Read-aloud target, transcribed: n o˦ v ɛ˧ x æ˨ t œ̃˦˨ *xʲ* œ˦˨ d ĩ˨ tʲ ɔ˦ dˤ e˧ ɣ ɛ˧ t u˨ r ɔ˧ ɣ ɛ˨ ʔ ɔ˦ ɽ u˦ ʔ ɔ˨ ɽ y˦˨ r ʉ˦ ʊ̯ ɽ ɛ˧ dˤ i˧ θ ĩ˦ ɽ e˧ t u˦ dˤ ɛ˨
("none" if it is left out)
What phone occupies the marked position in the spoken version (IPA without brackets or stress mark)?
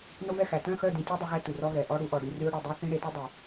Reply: x